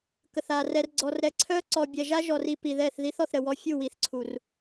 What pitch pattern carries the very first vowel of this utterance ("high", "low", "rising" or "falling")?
low